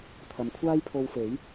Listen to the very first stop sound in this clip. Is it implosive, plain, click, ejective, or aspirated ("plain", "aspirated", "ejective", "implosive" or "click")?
aspirated